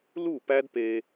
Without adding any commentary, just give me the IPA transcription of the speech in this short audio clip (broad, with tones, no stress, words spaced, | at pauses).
lu˦˨pæ˦dpe˧